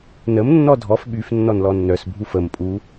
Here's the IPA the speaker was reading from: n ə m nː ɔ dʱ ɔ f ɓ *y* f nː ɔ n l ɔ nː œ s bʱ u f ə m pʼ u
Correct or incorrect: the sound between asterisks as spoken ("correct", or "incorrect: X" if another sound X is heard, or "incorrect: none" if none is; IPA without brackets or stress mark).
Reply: correct